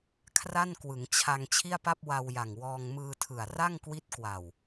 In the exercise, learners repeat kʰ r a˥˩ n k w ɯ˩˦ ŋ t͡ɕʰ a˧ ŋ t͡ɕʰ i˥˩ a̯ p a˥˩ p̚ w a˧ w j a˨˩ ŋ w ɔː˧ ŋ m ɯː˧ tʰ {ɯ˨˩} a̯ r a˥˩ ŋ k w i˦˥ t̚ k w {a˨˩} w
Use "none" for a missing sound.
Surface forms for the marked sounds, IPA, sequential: ɯ˨˩, a˨˩

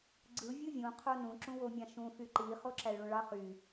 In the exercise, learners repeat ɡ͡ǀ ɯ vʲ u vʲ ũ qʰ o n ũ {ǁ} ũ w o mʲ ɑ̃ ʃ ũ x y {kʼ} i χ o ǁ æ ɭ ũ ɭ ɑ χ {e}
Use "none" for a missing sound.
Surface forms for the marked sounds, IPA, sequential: ǁ, ǃ, y

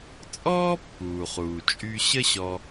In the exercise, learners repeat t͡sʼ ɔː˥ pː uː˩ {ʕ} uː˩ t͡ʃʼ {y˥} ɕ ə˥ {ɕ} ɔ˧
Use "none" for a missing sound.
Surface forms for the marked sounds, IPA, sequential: χ, y˧, ɕ

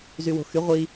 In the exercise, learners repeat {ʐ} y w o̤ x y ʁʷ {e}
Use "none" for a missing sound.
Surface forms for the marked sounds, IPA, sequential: z, i

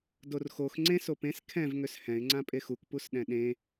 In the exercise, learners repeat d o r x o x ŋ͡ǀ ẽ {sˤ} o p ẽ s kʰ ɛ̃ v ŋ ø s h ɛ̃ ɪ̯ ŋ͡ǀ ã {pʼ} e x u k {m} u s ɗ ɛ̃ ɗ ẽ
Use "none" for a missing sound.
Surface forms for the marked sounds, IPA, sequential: s, pʼ, p

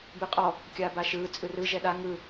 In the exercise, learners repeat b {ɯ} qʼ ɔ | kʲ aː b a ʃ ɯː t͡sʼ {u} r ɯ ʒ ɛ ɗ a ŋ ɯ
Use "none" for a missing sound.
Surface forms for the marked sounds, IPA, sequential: ɯ, ɯ

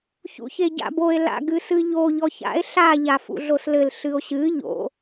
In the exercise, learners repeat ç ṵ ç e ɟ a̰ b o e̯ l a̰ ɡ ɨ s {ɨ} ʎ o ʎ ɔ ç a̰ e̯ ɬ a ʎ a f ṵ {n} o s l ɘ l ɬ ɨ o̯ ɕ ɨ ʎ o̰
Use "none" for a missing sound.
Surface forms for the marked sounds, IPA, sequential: ɨ, ɮ

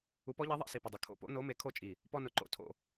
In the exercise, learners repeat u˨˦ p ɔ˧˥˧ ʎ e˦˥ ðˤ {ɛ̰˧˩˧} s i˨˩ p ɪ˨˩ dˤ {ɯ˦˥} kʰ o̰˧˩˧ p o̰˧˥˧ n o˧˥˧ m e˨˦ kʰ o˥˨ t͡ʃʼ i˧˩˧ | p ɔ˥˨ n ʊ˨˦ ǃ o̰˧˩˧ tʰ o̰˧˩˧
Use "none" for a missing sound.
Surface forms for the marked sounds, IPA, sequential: ɛ̰˧˩˧, ʊ˦˥

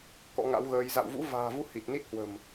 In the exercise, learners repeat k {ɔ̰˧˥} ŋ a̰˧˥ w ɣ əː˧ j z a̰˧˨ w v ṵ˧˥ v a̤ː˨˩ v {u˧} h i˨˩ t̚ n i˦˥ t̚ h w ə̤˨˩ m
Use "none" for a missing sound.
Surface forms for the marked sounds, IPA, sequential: ɔ̰˧˥, u˧

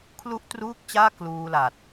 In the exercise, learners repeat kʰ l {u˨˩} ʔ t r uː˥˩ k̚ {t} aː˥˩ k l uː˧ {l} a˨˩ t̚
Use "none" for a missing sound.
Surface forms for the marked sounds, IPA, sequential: u˥˩, t͡ɕ, l

